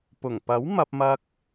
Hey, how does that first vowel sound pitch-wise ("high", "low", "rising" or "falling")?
low